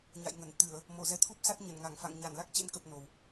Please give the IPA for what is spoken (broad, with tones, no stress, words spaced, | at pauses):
ɲa̰˧˨jŋə˧˩n t̪ɨ˧˩˨ə̯ | mo˧˩zɛ˨˦t̪ʰu˦˥p̚sa˦˥t̚ ɲə˧˩nŋa˧˩ŋfa̰˧˨ŋ ɲa˧˩nla˦˥k̚t͡ɕḛ˧˥nkə˨˩p̚ no˨˩w